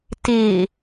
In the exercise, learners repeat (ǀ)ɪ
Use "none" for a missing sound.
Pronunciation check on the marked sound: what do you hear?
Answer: t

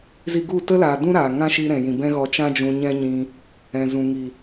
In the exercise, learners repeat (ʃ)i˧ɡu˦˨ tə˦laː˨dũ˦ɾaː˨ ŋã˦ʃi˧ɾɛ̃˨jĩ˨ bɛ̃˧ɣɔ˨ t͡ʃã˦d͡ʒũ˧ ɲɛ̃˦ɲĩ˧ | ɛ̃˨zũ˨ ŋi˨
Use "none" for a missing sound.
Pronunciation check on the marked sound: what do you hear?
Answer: z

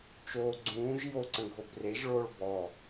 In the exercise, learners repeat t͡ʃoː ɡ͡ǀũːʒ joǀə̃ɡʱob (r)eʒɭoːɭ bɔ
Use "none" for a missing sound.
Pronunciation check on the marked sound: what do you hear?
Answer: r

